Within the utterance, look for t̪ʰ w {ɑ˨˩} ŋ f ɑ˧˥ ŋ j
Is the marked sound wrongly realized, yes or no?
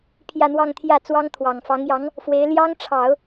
no